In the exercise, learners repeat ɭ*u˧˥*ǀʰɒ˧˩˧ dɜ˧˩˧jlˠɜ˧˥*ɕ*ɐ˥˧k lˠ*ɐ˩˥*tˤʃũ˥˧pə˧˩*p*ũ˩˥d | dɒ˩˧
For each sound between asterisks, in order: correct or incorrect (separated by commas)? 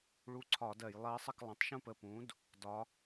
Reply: correct, incorrect, incorrect, correct